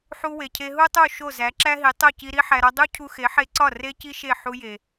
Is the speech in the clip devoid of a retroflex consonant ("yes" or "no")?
yes